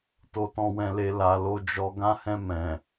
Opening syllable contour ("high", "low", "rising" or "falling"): low